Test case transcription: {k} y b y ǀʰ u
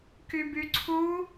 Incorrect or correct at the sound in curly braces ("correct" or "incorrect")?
correct